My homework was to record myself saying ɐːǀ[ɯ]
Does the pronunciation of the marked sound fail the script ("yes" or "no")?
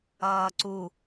yes